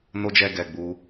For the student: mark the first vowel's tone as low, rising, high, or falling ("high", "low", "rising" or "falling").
high